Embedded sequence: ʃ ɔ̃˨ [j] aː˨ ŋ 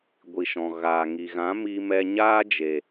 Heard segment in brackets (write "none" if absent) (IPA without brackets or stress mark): ɣ